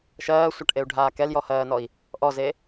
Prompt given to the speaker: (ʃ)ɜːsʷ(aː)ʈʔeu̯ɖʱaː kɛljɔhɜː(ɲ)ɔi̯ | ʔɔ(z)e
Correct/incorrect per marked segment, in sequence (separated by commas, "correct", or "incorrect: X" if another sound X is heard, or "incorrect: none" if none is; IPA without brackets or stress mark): correct, incorrect: a, incorrect: n, correct